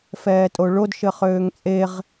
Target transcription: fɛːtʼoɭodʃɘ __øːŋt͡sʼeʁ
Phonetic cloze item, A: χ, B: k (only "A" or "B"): A